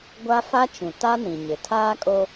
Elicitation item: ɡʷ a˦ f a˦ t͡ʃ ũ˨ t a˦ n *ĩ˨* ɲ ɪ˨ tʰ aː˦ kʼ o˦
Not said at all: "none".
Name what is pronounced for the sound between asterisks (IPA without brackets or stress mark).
ĩ˨